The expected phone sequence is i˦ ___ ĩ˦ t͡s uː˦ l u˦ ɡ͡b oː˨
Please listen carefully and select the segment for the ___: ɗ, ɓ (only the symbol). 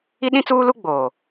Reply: ɗ